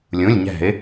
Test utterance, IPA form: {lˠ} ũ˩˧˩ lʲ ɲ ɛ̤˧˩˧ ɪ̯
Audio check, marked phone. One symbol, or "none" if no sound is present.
lʲ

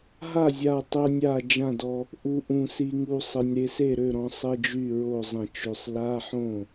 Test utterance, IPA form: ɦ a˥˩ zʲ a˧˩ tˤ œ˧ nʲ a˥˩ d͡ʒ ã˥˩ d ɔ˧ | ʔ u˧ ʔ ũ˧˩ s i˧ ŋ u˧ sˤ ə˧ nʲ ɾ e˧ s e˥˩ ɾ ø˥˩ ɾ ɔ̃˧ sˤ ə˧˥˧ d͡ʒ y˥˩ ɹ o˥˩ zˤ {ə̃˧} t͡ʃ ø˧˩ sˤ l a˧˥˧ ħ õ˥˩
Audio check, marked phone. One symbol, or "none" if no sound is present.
ə̃˧˩˧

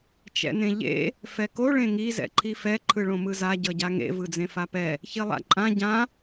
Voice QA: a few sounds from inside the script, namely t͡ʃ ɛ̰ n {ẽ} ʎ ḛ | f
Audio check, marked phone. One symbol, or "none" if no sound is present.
ẽ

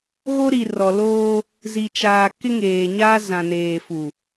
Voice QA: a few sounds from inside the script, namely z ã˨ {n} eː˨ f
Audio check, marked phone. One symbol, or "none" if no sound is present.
n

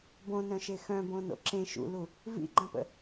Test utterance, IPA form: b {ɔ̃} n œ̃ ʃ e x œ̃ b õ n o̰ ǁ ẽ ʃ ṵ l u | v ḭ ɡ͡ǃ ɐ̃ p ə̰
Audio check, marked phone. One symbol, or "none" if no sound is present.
õ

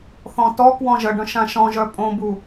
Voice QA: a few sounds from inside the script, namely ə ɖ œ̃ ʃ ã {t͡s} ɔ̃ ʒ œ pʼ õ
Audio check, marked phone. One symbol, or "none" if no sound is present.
ʃ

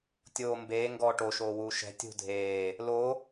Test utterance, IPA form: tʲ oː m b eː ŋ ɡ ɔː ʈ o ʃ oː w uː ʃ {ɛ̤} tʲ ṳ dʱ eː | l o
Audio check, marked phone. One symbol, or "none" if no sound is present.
ɛ̤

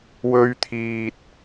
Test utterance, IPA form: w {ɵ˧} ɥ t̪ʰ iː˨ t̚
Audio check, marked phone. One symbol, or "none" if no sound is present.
ɵ˧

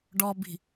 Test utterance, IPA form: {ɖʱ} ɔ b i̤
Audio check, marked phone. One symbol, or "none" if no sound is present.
ɖ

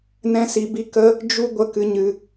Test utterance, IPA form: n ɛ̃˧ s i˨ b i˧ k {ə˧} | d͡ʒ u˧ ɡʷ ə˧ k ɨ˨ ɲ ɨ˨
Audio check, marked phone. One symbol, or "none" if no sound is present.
ə˦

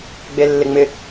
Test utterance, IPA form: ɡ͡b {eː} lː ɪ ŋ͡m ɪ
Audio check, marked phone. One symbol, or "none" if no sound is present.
e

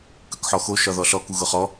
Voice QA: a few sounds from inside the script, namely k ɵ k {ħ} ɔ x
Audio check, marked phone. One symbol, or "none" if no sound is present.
ħ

